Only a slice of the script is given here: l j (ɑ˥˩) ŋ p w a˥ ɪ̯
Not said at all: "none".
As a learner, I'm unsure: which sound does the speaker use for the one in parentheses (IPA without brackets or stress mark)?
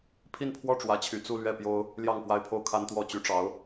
ɑ˥˩